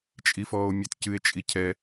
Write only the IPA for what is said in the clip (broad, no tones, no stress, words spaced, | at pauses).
t͡ʃʼifɔːo̯mʲɛtcɨe̯ t͡ʃʼicʰɛ